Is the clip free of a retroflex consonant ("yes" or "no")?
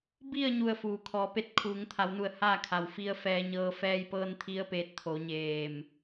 yes